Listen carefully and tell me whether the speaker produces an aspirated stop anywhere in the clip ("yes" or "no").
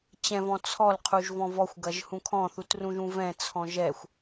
yes